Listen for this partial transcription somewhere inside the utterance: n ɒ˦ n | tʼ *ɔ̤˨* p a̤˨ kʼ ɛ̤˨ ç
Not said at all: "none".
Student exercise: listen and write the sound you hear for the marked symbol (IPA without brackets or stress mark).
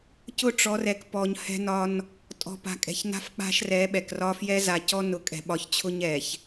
ɔ̤˨